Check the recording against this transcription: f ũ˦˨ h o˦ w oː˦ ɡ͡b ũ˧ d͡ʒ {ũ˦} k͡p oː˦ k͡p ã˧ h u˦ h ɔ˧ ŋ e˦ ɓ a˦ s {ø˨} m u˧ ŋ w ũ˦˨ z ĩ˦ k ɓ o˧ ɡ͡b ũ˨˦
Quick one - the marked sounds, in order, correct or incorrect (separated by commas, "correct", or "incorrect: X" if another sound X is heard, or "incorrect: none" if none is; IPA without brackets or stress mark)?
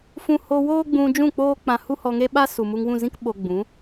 incorrect: ũ˦˨, incorrect: u˨